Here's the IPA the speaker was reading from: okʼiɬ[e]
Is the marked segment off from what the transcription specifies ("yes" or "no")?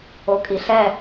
yes